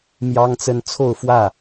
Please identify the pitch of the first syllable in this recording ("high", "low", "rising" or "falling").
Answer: high